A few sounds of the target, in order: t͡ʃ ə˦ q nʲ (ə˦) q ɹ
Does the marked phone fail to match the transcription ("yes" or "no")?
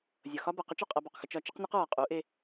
yes